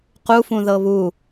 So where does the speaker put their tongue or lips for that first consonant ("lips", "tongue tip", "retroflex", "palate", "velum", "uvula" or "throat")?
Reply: uvula